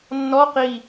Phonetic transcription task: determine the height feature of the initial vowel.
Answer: mid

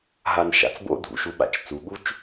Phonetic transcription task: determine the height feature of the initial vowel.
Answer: low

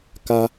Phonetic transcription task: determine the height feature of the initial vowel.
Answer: low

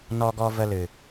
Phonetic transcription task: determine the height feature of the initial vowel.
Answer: mid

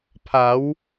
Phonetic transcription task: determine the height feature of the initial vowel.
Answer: low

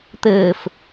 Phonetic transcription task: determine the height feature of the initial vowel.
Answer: mid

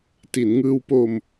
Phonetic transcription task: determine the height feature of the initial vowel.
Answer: high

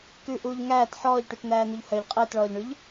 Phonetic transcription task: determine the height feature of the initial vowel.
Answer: high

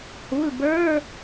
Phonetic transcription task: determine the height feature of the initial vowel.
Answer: high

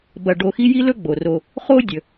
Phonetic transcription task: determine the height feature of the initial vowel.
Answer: low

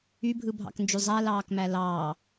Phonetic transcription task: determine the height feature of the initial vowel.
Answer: high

